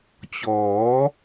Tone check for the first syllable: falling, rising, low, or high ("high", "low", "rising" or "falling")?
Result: rising